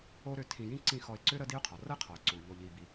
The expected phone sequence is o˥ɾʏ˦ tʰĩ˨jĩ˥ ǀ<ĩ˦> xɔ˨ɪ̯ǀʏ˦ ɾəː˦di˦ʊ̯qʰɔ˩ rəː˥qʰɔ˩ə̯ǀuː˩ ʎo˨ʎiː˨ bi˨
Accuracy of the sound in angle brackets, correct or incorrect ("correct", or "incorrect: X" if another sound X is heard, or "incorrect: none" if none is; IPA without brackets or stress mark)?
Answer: correct